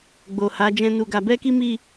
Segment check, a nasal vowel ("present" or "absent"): present